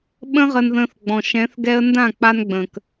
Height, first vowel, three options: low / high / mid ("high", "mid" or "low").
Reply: mid